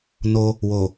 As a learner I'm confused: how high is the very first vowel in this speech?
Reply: mid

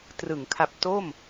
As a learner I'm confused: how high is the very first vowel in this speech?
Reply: high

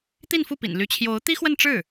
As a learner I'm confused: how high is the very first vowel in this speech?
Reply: high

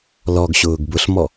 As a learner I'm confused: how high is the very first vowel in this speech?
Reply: mid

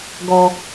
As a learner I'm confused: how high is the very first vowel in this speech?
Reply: mid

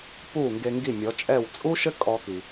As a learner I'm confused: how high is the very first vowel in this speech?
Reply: high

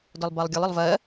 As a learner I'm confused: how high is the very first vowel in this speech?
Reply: mid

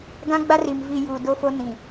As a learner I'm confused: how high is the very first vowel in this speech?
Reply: low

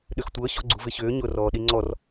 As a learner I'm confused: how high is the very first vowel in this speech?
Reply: high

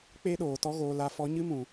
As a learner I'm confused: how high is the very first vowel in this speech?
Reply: mid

